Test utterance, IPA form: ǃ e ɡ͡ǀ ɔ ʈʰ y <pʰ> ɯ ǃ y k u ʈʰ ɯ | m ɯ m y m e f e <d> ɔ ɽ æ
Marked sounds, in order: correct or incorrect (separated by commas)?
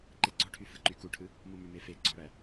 incorrect, incorrect